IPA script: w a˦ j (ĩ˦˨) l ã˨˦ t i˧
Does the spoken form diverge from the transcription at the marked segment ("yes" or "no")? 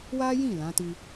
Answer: no